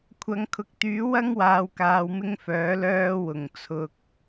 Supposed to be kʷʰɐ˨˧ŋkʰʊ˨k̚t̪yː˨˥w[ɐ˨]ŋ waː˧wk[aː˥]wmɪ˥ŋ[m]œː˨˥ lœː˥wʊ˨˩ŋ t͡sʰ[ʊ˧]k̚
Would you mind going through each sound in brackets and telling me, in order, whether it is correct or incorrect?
incorrect, incorrect, incorrect, correct

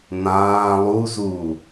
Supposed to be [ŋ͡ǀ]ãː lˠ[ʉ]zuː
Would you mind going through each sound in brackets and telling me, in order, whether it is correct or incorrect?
incorrect, incorrect

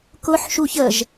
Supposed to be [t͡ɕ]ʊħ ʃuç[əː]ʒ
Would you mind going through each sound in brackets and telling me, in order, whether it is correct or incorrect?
incorrect, incorrect

